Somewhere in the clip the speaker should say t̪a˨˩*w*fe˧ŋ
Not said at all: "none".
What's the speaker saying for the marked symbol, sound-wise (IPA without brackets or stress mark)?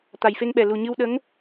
j